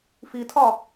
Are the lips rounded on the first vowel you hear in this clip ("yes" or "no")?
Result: no